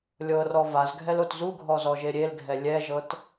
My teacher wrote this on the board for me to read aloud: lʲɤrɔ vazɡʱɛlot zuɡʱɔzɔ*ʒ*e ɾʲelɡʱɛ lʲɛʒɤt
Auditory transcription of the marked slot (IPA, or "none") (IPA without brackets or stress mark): ʒ